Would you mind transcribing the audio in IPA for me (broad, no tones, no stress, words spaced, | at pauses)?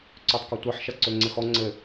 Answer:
ǀøtˤkɔtʷɐħ ʃɐǀøŋ͡ǀɘxɔ ŋ͡ǀɘ